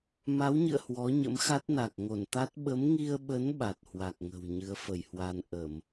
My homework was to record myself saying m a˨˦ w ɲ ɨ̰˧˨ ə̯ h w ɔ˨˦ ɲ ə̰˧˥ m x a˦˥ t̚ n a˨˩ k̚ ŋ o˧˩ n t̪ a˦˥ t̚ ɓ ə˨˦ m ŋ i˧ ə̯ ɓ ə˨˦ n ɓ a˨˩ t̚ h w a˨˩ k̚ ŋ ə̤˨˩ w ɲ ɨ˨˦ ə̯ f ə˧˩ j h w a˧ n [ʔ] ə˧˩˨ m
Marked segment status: correct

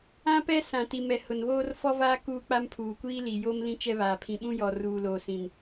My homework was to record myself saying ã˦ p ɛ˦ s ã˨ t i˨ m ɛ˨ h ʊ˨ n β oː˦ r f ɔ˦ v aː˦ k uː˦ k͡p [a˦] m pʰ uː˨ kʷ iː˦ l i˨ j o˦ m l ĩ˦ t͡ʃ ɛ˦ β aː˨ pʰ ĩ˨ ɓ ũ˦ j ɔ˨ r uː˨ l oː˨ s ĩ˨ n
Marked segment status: correct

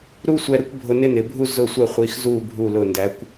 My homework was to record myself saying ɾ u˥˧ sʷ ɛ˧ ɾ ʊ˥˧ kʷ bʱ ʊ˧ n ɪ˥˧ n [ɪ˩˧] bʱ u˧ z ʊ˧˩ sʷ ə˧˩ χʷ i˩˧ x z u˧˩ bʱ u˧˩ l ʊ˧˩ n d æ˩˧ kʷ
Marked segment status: correct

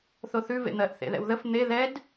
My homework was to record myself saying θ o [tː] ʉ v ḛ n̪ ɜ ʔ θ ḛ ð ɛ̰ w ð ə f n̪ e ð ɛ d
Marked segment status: incorrect: θ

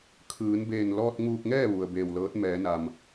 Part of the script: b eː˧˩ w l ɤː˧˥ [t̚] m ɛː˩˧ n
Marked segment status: correct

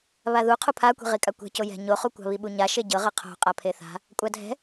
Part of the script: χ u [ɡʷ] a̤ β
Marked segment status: incorrect: kʷ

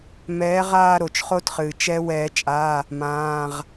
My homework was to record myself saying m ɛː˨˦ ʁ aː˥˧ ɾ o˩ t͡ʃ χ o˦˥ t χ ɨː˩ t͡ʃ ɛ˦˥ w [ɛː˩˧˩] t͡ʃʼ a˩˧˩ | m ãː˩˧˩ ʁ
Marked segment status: incorrect: ɛː˨˩˦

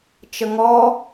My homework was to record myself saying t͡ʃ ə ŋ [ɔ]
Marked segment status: correct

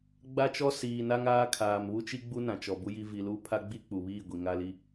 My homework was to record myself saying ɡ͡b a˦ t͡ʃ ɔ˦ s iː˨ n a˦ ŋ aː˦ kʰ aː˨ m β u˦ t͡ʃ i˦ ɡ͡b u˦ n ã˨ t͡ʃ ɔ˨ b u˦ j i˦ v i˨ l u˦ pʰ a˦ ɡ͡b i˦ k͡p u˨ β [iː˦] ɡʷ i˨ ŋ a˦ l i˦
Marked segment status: incorrect: iː˦˨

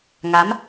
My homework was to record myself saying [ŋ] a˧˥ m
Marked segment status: correct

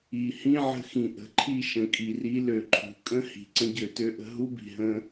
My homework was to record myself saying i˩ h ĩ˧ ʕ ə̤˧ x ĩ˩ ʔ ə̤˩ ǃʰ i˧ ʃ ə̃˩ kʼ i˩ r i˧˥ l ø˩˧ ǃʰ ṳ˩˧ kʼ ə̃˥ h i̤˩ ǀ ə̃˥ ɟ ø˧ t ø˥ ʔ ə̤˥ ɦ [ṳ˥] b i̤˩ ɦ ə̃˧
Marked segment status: incorrect: u˥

